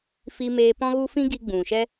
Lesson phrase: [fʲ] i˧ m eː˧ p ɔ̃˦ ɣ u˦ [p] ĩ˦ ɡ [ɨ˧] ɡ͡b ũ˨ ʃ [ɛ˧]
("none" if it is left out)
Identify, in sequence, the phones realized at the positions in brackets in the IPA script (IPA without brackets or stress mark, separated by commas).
f, f, i˧, ɛ˦